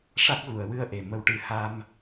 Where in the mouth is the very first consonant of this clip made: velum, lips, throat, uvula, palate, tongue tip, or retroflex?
retroflex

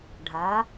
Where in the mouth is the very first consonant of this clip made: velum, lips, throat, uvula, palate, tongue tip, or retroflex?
retroflex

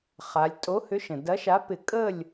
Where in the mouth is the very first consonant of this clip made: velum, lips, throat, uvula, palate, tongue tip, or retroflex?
uvula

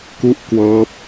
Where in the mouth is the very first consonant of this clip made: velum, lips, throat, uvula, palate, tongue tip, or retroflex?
velum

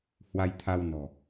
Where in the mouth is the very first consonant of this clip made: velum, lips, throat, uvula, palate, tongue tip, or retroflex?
throat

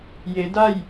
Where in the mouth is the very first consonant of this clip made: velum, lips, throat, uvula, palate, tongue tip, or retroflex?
palate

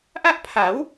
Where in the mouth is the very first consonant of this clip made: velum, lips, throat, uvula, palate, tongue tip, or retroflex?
throat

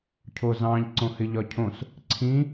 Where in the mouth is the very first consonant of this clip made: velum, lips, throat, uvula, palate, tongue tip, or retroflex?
palate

